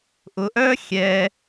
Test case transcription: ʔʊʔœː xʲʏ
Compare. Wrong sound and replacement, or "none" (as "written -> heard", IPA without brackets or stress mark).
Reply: ʏ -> ɛ